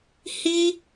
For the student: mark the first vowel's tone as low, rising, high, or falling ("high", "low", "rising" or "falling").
high